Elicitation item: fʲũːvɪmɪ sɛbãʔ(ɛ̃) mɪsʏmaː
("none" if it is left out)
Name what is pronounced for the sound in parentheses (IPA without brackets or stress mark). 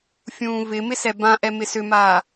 ɛ